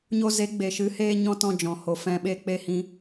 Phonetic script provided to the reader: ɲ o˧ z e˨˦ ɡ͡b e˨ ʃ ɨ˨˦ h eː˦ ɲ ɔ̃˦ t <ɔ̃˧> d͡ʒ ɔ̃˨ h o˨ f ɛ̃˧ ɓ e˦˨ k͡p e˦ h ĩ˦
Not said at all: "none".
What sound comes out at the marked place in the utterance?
ɔ̃˧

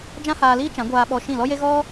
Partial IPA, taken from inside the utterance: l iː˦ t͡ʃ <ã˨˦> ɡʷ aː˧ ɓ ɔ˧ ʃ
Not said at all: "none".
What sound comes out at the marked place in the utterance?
ã˨˦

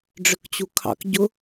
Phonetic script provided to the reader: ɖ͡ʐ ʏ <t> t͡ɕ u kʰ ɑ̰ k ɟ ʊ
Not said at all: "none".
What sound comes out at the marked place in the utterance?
k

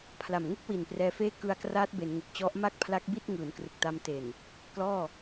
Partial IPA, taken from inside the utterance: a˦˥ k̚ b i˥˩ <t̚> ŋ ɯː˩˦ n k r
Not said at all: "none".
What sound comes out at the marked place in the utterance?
t̚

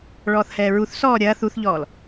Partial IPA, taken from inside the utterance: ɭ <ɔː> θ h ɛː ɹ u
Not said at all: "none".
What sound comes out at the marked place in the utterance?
ɔː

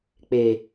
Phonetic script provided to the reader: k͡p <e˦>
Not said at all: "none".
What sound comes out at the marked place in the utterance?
e˨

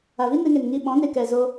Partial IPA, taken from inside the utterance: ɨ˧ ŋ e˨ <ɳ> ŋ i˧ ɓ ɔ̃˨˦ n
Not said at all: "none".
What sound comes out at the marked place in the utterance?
n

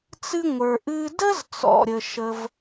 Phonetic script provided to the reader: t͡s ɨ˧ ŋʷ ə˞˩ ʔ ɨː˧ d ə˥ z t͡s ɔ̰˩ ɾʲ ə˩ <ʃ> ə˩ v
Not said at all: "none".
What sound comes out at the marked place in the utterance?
ʃ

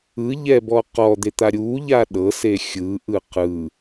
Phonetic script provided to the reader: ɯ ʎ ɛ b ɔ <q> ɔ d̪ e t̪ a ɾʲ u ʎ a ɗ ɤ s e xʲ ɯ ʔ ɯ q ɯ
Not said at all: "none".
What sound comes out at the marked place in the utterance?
q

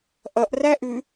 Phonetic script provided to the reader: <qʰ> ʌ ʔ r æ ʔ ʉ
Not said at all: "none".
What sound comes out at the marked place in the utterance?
ʔ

